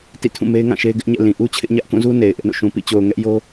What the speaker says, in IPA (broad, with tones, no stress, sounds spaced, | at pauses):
t ḭ˦˨ tʰ ũ˦˨ m e˦ ɪ̯ ŋ ã˦˨ ʃ e˦ ɪ̯ ɡ ɪ˦ ʔ ɲ ɛ̰˦˨ l ĩ˨ ʔ u˦ t͡ɕʰ ɪ˦ ʔ ɲ ä˦ ʔ k ũ˦˨ z u˦ n e˨ ɪ̯ ʔ ɪ˦ ʔ n o̰˦˨ ʃ ũ˨ p ḭ˦˨ t͡ɕ o˨ ʊ̯ ŋ ɛ˦ ʔ j o˦